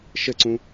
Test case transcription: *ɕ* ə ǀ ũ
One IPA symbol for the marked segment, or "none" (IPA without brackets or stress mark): ʃ